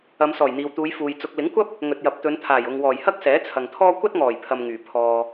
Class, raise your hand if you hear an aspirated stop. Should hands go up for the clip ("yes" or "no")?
yes